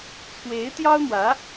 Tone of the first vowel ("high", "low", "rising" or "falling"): rising